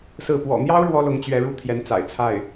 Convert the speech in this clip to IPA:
sɹ̩˥˩ pwɔ̰˨˩n̪jɑ˥ʊ̯ ɻwɔ˥lʊ˧˥ŋ t͡ɕɥɛ˧˥ɻu˥˩ t̪ʰjɛ˧˥n t͡sa̰˨˩ɪ̯t͡sʰa˥˩ɪ̯

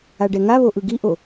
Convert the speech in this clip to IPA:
aɖɛŋaβo ʔɯɡiʔo

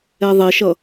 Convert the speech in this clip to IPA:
ɛðˤeʃʌ

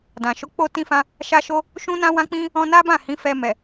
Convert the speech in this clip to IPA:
dã˨ ʃo˨˦k͡po˧tĩ˧fã˧ | ʃa˦ʃo˦ | ʃũ˦nã˦wã˦k͡pĩ˦ | ɔ̃˧na˦bã˦˨ hĩ˨˦ fɛ˧ mɛ˨

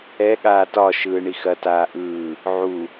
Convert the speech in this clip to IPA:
ɛ ɠaːtɒ ʃɯːɳixɐ taːʔɯː | ʕu

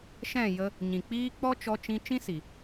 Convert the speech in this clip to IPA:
ʃɛ̃˦˨ jə˧ | ɲĩ˨k͡piː˦ k͡pɔ˦t͡ʃɔ˧t͡ʃĩ˧ t͡ʃĩ˦si˨

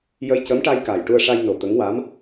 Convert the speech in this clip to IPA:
jə˧j cə˧˥mʈa˧jka˨˩j ʈu˧ə̯ʂa˧jno˨˩ t̪ə˧˥ŋwa˧˥m

